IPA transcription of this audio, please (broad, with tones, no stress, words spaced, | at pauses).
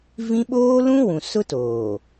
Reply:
vĩ˦ ɓoː˦lũ˦wũ˨ sʊ˦toː˨